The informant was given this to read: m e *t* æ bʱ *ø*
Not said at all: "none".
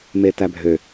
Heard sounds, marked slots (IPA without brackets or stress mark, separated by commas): t, ø